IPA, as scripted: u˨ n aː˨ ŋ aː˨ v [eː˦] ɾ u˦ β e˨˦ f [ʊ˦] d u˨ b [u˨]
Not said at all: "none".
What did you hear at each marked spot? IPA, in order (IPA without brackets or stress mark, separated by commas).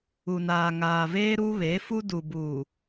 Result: eː˦, u˦, u˨